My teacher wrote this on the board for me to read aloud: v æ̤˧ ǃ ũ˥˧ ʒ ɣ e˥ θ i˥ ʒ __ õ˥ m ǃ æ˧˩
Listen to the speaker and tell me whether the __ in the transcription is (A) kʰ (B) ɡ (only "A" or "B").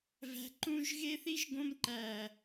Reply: B